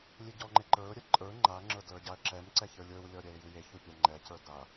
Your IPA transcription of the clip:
lʲ e ɟ ɔ ŋ͡ǃ e ǃ ə˞ ʊ̯ ɾʲ ɛ ǃʼ ə˞ ŋ͡ǃ a ŋ͡ǁ ə˞ d l ə˞ ɟ a ə̯ ǁ ɛ m ǀ ɛ ç ə˞ lʲ ə˞ w lʲ ɔ ɾʲ ɛ ɪ̯ j u j e ç u pʲ a ŋ͡ǃ ɛ c ə˞ d a

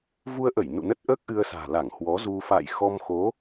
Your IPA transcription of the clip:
v u˧ ə̯ ʔ ə˧˩ j n ṵ˧˨ n ə˦˥ t̚ ʔ əː˦˥ k̚ ʔ ɨ˧ ə̯ s a̤ː˨˩ l a˧˩ ŋ h w ɔ˨˦ z u˧ f a̰ː˧˨ j x ɔ˧ m x o˨˦

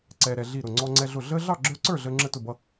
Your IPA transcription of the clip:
ǀ ɛː˦ ɾ ɛ˦ ɮ i˥˨ ɾ ʊ˥˨ ŋ͡ǀ ɔ˦ ŋ͡ǀ ɛ˦ ɮ ʊ˥˨ ɮ əː˦ ɮ ɑ˥˨ ɡ͡ǁ ə˞˦ ǀ ə˞˥˨ ɮ əː˦ ŋ͡ǁ ə˥˨ t ʊ˥˨ b ʌ˦

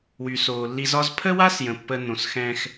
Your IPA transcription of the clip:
w y˩ s oː˩ lː i˧ z ɒ˥ z pʰ ə˥ w a˥ s j ə̃˩ pː ə˧ n õ˩ s x ɛ̃ː˧ x

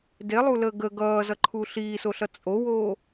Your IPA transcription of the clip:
d e lˠ u l əː ɡ ə ɡ ʌː z ʌ ǃʰ u ɬ iː s o ɬ ʌ t͡sʼ o w oː

